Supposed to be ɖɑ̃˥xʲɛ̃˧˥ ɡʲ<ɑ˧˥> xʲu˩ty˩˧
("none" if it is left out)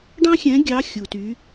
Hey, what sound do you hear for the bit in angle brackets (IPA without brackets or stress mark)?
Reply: ɑ˧˥